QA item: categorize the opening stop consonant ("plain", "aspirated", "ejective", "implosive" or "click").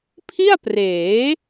aspirated